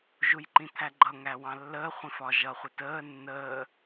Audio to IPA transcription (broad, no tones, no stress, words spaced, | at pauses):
ʒujǃĩt̪ʰæɡ͡ǃʌ ŋæwɑ̃lːəː χʷĩfɒʒʌχʷɪ təː nːəː